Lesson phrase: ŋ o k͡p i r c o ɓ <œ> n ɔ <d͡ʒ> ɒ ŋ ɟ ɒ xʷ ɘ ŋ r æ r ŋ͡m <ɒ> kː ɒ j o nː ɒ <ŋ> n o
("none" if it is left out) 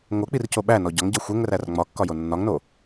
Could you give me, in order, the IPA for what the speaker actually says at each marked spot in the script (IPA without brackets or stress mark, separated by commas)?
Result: æ, ɟ, ɒ, ŋ